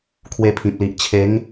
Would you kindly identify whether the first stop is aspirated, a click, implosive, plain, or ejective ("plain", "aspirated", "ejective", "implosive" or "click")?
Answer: aspirated